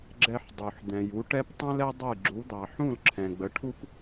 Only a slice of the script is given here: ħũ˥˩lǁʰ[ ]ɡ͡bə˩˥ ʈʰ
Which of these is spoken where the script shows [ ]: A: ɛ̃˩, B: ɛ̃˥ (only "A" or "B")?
A